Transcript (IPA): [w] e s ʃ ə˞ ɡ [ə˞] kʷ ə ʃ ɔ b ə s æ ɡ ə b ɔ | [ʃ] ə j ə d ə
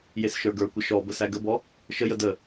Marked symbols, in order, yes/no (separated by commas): no, yes, yes